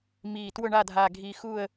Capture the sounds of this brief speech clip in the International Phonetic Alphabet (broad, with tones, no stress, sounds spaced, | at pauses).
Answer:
m iː˨˩ t w ʊ˦˨ ɳ a˦˨ dʱ aː˨˩ ɡʱ iː˨˩ x uː˦˨ ə̯